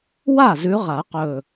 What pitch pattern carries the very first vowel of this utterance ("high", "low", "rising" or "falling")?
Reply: falling